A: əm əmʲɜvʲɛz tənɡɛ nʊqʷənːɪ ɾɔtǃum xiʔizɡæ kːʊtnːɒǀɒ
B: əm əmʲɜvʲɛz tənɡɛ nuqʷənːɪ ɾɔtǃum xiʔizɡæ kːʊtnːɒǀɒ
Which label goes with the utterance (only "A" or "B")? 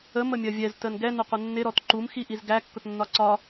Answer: A